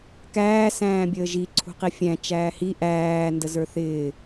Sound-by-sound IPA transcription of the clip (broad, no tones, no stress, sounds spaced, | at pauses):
k æː s æ̃ː bʲ əː ʒ i ǀʰ ṳ q i fʲ æ̃ t͡ʃ æː h i ʔ æː n d ə z ə˞ θ ɪː